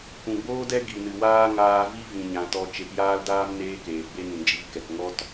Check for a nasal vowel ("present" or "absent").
present